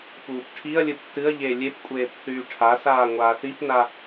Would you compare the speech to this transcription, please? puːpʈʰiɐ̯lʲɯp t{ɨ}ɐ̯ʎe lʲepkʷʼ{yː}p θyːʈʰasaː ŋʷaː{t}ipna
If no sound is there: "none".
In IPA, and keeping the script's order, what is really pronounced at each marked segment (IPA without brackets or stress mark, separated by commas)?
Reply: ɨ, eː, θ